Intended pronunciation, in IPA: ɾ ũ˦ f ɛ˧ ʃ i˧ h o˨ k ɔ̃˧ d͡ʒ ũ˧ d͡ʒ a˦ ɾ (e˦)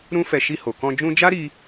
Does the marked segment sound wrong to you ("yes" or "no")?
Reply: yes